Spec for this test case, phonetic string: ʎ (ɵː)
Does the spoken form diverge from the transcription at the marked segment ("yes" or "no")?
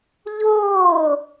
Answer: yes